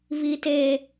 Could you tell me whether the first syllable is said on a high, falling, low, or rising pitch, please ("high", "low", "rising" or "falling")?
high